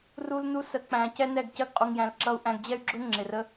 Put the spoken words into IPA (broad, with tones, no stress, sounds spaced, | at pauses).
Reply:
r u˧ l n u˧ s ə˨ k͡p æ̃˨ c ɛ˦ n ɛ˦˨ ɡ c ɜ˧ ɡ qʼ u˨ ŋ j æ̃˨ l ǁ ʌ˧ u̯ ʔ æ̃˧ ɡ d͡ʑ ɛ˦ y̯ ɡ͡ǁ ʊ˦ ŋ͡ǁ ɪ˨ r ə˧